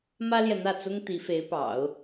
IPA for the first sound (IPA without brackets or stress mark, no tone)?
m